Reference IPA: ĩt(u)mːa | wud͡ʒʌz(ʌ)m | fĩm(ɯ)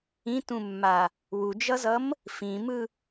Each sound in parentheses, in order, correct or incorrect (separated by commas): incorrect, correct, correct